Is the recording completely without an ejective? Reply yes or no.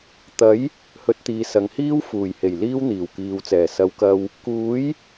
yes